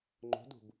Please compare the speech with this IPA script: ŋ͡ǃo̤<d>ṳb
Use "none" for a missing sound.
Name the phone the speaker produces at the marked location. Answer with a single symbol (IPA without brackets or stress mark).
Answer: d